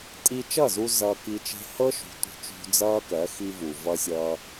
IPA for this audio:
tʼ i˧ t͡ʃ ʌ˦˨ z u˧ z ʌː˧ k i˧ t͡ʃ e̤˦ h ɤ˦ ʃ ṳ˨˦ tʷ i̤˨ t͡ʃ ṳ˧ d͡z ʌː˦ k ɜ˨˦ x i˦ v u˨ v ʌ˦ sʲ ʌː˦

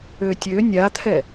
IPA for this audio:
ø tʲ ø nʲ a t̪ʰ ɛ

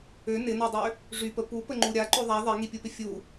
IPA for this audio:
ø n ɪ n ɔ dˤ ø | ʐ y p ə p u p ə ŋ͡ǃ u ɾʲ a ǃ ø ðˤ a ðˤ ɛ ŋ i pʲ u p ɪ fʲ u

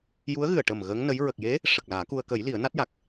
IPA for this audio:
j u˧˥ ə̯ ɣ ɨ˨˩ ə̯ ʈ ə˨˩ m ɣ əː˧˥ ŋ n ə˧˥ j ɹ ə˨˩ k̚ j e˧˥ | ʂ ə˨˩ k̚ l aː˨˩˦ k u˧ ə̯ k ə˨˩˦ j l i˨˩˦ ə̯ n a˦˥ t̚ j a˨˩ k̚

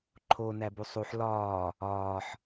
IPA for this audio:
ǃʰ o n æ b u sˤ u ħ l ɒː | ɒː ħ

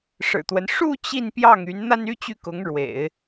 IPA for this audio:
ʂ ɻ̩˨˩ t̪ w ə˦ n ʂ u˥˧ t͡ɕ i˥˧ n p j ɑ˥˩ ŋ y˧˥ n n̪ a˥ n y˥ t͡ɕ y˥˩ k ʊ˧˥ ŋ ɻ w ḛ˨˩˦ ɪ̯

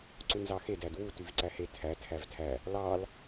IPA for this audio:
ǀ u n z ɑ x e d æ d w u t y v ǀ æ h e tʰ æ tʰ æ v tʰ æ | l ɑ l

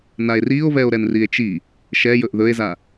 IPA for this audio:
n a e̯ r i o̯ v ɛ o̯ ɾ ɛ n r i e̯ t͡ʃ i | ʃ ɛ j ɵ ʔ ð ɵ e̯ z a

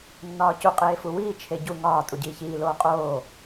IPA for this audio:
nː ɒː c u qʼ eː f u w iː t͡ʃʰ e ɟ u ŋ ɒː tʼ u ɟ iː ç iː l oː qʼ oː

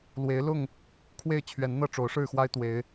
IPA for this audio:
l w e˨˦ ɪ̯ l ʊ˥˨ ŋ | kʰ w e˥˨ ɪ̯ t͡ɕʰ ɥ ɛ˨˦ n n̪ ɤ˥˨ ʈ͡ʂ o˨˦ ʊ̯ ʂ ɻ̩˥˨ x w a˦ ɪ̯ t̪ w e˨˦ ɪ̯

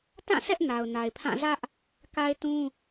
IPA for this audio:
t ã˦˨ sʰ ɛ˦ ʔ n a˨ ʊ̯ n a˨ ɪ̯ pʰ ã˦˨ z ä˦ ʔ | k a˦ ɪ̯ t ũ˦

